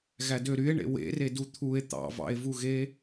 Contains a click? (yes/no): no